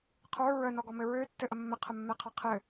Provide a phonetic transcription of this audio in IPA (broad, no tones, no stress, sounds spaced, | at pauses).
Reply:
qʰ ə˞ ɹ ə n ɔ ɡ ɔ m ɘ ɹ ø tː ɘ ʔ ə mː ɘ qʰ ə mː ɛ qʰ a qʰ ɘ